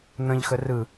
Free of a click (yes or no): yes